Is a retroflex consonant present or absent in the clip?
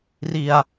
absent